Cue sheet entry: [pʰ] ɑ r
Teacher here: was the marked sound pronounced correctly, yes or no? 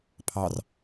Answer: yes